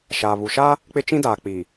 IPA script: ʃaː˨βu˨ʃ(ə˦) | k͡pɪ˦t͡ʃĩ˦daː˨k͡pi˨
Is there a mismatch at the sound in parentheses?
yes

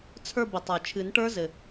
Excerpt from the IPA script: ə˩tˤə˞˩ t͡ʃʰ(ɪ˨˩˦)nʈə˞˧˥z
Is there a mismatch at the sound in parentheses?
yes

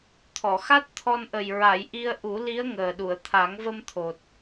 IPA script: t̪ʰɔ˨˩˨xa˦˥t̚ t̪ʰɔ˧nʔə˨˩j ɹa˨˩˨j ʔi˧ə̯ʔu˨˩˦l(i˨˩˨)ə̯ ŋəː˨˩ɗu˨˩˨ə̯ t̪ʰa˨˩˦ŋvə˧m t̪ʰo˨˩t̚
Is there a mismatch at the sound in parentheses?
yes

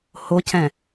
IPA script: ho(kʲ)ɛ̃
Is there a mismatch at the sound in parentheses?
yes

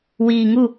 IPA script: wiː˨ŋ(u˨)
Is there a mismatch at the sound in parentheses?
yes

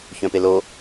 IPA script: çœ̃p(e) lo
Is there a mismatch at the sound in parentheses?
no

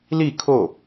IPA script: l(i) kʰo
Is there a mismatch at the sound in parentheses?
no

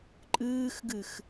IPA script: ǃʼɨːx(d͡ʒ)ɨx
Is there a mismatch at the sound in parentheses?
yes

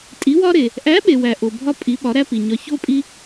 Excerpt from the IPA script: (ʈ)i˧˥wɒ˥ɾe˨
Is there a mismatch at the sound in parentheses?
yes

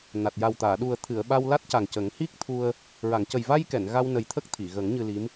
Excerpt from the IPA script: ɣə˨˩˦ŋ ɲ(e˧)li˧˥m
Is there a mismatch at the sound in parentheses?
yes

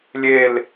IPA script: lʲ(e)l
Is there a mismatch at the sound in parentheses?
no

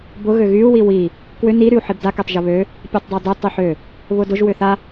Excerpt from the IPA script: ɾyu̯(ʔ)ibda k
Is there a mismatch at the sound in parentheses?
yes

